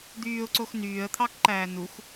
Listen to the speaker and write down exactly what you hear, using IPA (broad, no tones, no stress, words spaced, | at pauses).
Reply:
d̪yːʊ̯ǀox nyːə̯t̪ʰɑkǃæː nux